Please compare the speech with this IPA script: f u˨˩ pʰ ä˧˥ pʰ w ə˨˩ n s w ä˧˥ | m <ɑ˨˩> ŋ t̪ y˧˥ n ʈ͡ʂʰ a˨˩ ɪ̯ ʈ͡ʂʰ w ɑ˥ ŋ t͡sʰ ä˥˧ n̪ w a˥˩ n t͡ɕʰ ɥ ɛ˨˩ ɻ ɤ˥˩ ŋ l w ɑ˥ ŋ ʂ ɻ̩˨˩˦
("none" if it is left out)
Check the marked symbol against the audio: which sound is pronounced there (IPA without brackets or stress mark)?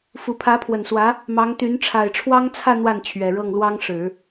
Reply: ɑ˧˥